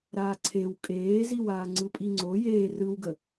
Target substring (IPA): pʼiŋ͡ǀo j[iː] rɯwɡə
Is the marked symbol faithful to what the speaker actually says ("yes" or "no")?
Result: no